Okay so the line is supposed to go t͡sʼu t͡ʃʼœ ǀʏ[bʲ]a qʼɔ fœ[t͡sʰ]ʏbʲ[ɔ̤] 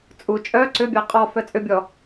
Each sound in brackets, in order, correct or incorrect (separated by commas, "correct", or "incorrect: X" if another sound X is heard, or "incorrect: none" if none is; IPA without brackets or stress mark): correct, incorrect: t͡sʼ, incorrect: ɔ